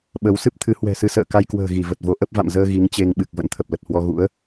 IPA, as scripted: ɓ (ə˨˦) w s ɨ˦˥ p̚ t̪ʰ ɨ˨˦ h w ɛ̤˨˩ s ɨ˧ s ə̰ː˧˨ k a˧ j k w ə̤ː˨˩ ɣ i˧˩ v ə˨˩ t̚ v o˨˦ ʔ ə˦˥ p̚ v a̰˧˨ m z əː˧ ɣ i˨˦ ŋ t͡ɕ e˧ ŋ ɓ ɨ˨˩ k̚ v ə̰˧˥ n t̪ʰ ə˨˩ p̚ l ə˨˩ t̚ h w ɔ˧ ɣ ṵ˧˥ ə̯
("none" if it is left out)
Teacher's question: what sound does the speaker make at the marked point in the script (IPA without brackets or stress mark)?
ə˨˦